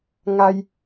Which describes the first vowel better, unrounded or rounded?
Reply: unrounded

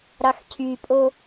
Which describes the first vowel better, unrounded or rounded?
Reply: unrounded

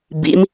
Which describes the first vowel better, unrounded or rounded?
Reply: unrounded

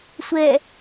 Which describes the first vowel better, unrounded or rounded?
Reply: unrounded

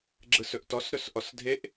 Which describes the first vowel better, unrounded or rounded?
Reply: unrounded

